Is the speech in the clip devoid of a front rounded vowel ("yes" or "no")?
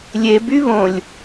no